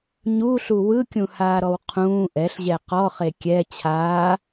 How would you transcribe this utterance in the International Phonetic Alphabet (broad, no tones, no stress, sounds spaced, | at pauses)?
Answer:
ɲ u ɬ u w ɯ kʲ ũ h aː ɾ ɔ w qʰ ũː ʔ ɛ ɬ ʑ ɛ q ɔ χ e kʲ ɛ t͡ɕʰ aː